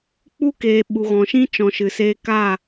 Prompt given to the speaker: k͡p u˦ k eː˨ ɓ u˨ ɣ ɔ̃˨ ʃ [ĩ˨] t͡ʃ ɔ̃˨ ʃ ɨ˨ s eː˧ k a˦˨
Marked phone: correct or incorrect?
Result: incorrect: ĩ˦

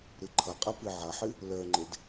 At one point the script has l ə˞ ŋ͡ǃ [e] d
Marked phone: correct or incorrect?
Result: correct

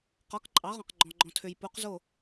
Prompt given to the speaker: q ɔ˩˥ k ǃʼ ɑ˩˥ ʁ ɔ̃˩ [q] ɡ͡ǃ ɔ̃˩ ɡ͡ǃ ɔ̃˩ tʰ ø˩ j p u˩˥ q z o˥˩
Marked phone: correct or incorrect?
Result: correct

